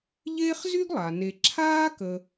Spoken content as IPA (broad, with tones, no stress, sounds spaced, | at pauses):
ʎ eː˥ χ z y˥ ɡ lˠ a˩ n e˧ ǁʰ aː˥ k ə˥